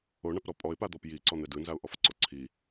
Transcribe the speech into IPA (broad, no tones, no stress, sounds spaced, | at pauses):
o ɳ a p ɾ ɔ pʼ ɔ ɪ̯ p a d̪ ɔ p j i ǀ ɔ n̪ ɛ d ɯ n z a ʊ̯ ʔ ɔ f ǀ o ǀʰ i